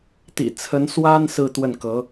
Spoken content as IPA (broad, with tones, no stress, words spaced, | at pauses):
t̪ḭ˨˩t͡sʰə˧˥n swa˥n sɹ̩˥˧ t̪wə˥˩nkɤ˧˥